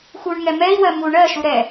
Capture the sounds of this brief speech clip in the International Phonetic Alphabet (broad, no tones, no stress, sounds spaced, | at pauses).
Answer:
x u ɳ ŋ ɛ m ɛ i̯ w ɜ m u ɳ ɜ ʃ u ɾ ɛ